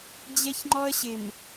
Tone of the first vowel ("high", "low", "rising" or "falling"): high